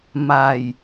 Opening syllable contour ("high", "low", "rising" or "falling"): low